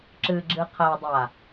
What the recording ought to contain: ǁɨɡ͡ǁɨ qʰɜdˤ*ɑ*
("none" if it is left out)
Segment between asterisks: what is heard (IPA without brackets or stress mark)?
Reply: a